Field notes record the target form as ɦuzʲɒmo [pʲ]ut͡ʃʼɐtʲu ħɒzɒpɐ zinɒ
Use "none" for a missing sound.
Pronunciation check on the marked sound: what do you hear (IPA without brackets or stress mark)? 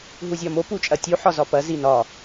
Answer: p